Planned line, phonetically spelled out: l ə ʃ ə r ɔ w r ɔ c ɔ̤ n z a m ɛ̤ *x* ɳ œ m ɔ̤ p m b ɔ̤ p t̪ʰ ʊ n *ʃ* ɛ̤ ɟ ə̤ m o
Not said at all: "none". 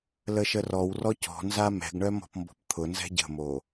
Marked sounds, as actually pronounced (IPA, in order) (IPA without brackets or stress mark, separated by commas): ɡ, z